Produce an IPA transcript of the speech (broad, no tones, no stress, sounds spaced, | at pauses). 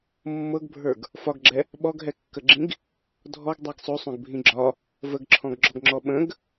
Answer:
mː ɤ ɡ bʱ ə˞ ɡ | f ɒ ɡ ɡ͡ǁ ɛ | ɓ ɔ ɡ ɦ ɛ kː ə ɡ͡ǁ ĩ ɡ | dʱ ɔ ɡ dˤ ɛ ɡ sˤ o sˤ õ ɡ bʱ ĩ ɡ͡ǁ ɒ | v ə ɡ ǁʰ ɔ̃ ɡ ɡ͡ǁ ɔ ɡ ŋ͡ǁ ɔ ɓ ə̃ ɡ